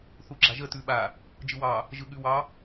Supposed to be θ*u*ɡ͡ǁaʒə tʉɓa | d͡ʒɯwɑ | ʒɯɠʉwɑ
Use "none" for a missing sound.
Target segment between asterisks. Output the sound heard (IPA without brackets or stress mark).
u